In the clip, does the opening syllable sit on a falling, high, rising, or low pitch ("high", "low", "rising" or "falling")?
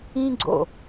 high